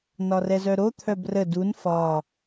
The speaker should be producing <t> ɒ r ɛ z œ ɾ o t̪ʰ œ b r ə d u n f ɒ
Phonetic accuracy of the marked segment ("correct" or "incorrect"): incorrect